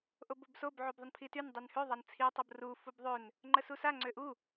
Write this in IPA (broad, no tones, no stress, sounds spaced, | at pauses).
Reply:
ʔ o b o b s o b ʕ y b ðˤ ə n pʰ i t y n dˤ y n h ø ðˤ a n t͡sʰ i tˤ o b r u f u b ðˤ ø n | ŋ͡ǃ ə s u s a ŋ͡ǀ ø ʔ u